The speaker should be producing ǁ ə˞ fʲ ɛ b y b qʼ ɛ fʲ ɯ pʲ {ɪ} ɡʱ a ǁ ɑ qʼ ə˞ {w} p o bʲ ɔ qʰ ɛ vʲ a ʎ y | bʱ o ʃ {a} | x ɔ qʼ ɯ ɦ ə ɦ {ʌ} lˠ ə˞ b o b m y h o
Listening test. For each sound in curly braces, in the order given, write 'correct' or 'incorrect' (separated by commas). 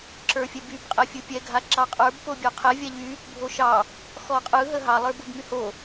incorrect, incorrect, incorrect, incorrect